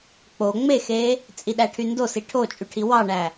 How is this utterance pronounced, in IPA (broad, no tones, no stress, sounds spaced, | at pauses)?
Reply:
k͡p o ŋ͡m e x e | t͡sʼ i ɗ æ ʈʰ y n d o s i ʈʰ o t͡ʃʼ y ʈʰ i w ɑ ɳ æ